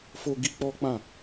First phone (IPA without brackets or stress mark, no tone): f